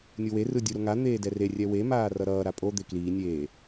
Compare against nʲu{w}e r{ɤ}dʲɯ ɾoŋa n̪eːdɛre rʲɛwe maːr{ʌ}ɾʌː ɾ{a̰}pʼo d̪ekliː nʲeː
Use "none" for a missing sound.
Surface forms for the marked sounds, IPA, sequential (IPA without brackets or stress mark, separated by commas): w, ɯ, ʌ, a